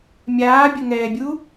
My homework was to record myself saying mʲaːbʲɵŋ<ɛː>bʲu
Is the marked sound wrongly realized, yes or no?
no